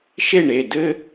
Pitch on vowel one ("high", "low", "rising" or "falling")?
falling